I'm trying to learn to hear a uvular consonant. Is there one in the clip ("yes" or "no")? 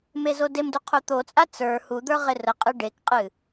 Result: yes